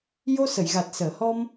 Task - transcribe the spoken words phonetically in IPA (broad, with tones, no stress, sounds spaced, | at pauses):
j o˧ s ə˨˩˨ j ɣ a˨˩ t̚ s əː˨˩˨ h ɔ˧ m